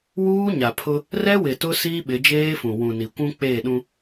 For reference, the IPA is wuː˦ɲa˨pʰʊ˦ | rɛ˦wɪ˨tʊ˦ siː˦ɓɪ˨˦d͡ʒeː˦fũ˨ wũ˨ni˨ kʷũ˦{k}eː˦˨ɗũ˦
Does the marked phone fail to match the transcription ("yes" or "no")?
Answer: yes